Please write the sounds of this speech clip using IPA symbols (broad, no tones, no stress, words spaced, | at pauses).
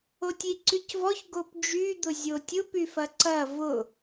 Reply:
otʲiǀycvɔç ɡopd͡ʒyd̪ʊ zʲotʲʊp yfɐǀɐ vʊ